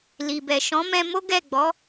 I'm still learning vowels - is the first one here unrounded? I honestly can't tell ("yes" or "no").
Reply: yes